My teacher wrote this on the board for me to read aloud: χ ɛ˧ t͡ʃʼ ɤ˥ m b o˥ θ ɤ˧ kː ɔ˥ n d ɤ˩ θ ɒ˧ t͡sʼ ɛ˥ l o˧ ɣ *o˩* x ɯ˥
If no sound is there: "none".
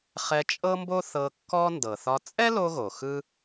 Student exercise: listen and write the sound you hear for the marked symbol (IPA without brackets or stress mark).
o˩